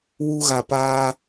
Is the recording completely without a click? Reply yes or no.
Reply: yes